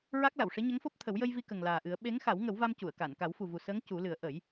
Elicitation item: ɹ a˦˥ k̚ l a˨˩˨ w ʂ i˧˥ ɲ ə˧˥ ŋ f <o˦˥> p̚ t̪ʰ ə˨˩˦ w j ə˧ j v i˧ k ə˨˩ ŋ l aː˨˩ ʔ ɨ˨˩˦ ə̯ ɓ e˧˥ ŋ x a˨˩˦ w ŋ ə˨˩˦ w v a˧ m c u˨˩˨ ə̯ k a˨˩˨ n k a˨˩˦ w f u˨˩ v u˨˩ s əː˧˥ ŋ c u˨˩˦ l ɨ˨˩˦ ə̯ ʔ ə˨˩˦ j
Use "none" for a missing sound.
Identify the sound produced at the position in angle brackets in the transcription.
o˦˥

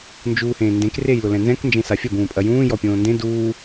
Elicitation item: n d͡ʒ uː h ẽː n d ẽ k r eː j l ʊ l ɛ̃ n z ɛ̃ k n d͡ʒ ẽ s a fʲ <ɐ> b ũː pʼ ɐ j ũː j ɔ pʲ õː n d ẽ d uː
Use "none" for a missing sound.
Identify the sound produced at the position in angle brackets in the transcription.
ɐ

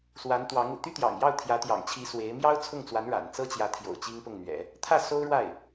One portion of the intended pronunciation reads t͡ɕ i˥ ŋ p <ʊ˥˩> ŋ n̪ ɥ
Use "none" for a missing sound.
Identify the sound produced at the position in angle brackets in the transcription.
ʊ˥˩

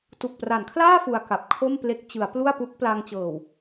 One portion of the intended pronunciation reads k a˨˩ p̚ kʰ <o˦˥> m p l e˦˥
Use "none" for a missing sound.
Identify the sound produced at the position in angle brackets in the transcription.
o˥˩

